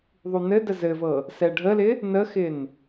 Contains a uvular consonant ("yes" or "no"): no